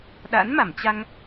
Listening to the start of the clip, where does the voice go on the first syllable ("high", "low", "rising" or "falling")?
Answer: rising